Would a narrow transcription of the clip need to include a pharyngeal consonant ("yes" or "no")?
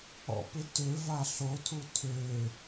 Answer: no